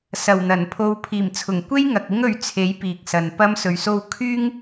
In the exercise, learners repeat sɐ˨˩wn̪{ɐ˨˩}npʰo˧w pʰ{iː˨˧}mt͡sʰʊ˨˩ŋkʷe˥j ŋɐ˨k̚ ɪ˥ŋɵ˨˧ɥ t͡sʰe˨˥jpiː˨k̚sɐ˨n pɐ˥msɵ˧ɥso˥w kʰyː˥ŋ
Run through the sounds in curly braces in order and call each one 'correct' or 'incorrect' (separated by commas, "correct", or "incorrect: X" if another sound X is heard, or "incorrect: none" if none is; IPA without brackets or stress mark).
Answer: correct, incorrect: iː˨˩